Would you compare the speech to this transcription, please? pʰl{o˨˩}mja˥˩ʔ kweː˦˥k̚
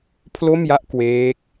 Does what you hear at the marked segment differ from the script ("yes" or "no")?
yes